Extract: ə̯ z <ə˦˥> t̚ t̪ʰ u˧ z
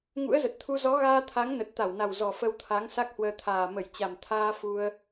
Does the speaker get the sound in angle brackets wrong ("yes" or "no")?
yes